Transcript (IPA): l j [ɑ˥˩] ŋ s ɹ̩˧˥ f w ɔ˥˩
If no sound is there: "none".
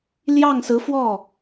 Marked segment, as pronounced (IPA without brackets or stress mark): ɑ˥˩